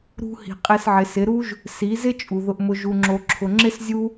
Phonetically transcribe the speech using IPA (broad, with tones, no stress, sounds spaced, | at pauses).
ɾ ṳ˧ h i̤˨ qʼ e˧ s ʕ ɪ˨ s ɪ˨˦ ɾ u˦ ʒ | s i˨˦ z ɪ˦ t͡ʃʼ u˨ ð ʊ˧ ʔ m ʊ˧ ʒ u˨ ŋ͡ǁ o˨ ǁʰ ʊ˨ ŋ͡ǁ ɪ˦ s zʲ u˦